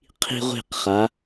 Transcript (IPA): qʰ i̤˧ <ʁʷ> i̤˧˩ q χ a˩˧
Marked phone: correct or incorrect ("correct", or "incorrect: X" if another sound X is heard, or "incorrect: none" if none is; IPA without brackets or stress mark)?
correct